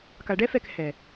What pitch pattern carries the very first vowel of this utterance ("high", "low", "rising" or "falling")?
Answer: low